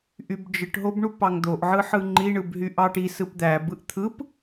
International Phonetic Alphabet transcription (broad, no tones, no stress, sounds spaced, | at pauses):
ʔ y b d͡ʒ ɯ ʈ ɦ o b ɳ u p ɑ ŋ d̪ o ʔ ʕ ɯ ħ ɯ ŋ͡ǃ i ɳ ɯ b ɦ y ʔ ɑ ʈ i s ɯ p d̪ æ b ɯ ʔ t̪ʰ ɯ p